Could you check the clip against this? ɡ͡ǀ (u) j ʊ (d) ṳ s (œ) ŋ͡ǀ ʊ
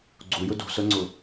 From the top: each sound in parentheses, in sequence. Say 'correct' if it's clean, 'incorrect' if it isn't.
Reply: correct, correct, correct

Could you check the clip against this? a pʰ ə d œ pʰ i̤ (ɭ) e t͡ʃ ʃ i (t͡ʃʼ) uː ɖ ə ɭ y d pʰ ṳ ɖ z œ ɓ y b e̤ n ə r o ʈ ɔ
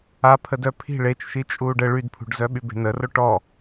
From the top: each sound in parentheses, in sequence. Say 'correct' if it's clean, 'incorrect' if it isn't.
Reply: correct, correct

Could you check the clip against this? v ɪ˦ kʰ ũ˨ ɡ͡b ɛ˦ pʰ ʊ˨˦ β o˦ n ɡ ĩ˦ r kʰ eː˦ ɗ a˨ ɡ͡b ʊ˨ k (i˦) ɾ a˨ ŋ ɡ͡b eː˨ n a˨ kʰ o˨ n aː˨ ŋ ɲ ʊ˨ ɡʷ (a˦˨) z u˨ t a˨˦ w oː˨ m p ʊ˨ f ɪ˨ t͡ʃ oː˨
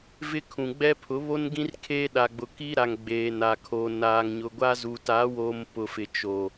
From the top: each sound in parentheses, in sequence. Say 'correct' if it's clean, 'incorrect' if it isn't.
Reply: correct, incorrect

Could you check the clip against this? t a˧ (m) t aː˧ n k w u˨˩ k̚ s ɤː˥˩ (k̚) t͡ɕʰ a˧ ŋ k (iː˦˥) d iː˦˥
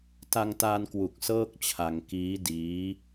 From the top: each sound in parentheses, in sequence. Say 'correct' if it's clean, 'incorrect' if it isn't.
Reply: incorrect, correct, correct

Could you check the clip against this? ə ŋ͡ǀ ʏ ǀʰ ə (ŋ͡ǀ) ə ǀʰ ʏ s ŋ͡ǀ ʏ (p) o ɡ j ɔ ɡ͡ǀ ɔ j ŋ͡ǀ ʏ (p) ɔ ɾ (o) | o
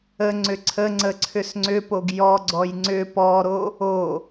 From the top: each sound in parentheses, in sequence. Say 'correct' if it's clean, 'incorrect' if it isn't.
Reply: correct, correct, correct, correct

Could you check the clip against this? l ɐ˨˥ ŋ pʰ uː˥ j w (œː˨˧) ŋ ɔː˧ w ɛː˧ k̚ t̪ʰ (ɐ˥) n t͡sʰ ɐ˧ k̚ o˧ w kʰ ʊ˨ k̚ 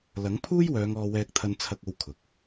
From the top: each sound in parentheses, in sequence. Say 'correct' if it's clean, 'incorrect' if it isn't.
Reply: correct, incorrect

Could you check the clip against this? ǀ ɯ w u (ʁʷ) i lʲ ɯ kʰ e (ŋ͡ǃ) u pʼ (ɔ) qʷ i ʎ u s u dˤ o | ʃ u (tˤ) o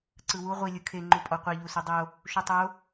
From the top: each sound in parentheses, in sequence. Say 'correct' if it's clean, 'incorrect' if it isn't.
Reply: correct, correct, correct, correct

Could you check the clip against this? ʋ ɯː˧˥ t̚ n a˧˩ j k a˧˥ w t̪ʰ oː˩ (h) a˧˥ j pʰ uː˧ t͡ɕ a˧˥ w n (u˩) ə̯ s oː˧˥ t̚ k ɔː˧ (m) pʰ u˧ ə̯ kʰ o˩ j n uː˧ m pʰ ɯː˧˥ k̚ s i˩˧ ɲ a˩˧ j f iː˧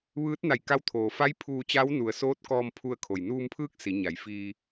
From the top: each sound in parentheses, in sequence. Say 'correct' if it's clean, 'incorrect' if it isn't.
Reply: incorrect, correct, correct

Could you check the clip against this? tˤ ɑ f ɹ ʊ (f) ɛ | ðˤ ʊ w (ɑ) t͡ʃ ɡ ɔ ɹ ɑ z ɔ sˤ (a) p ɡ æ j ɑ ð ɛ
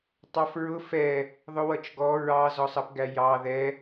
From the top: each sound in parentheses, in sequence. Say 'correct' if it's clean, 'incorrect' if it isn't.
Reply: correct, incorrect, incorrect

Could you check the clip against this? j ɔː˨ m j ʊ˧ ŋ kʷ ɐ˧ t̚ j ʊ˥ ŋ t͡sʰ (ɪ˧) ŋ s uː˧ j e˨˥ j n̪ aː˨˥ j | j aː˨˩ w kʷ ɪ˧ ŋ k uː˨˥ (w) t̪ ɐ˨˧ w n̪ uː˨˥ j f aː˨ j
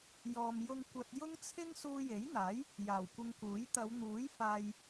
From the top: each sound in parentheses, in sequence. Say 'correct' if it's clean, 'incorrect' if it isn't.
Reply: incorrect, incorrect

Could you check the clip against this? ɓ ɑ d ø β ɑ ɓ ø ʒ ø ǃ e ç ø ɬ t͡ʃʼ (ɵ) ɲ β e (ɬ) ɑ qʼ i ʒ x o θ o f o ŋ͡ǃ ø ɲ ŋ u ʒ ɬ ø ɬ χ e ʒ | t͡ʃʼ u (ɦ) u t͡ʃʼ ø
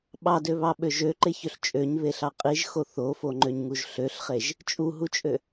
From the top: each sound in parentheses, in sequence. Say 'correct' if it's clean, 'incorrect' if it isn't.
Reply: incorrect, correct, correct

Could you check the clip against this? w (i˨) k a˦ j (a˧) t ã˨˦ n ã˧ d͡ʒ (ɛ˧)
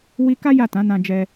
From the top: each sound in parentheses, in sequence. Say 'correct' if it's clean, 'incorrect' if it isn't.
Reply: incorrect, incorrect, correct

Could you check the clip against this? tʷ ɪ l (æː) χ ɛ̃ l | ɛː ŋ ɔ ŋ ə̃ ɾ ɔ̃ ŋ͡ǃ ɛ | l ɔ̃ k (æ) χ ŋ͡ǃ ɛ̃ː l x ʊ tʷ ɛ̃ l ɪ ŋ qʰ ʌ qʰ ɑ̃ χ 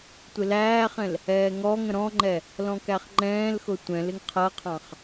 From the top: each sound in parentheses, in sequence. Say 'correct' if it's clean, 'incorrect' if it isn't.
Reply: correct, correct

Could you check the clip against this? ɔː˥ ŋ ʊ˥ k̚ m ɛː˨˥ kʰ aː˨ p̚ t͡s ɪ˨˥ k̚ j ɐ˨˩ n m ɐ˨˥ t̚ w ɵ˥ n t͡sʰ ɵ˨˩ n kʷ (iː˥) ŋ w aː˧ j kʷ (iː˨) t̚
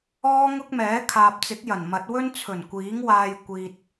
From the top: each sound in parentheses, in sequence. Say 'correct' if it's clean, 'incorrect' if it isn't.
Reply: incorrect, correct

